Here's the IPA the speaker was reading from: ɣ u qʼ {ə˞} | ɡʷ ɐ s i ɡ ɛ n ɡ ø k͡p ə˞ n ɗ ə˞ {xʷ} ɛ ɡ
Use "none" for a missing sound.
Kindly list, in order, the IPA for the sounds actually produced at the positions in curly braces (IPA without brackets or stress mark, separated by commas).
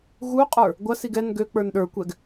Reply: ə˞, kʷ